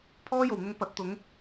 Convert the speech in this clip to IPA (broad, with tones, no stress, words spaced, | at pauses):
pʰɔː˥jo˨˩wn̪ʊ˧ŋ pɐ˨˥t̚t̪ʊ˨˥ŋ